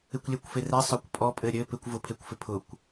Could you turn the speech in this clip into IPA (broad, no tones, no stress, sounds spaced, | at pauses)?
ɪ kʷ lʲ ɛ kʷ f e r ɛ sˤ œ kʷ pʼ ɔ pʼ ɘ ɾʲ ɘ p ɪ kʷ v ʊ pʰ e kʷ f ɪ pʰ ʊ kʷ